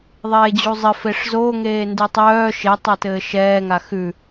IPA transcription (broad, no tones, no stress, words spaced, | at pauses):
ðˤeːd͡ʑuzˤɘ feʂzo ŋeːndʉtˤœː ʃe tˤɛtɘːʃɛː ŋaxʉ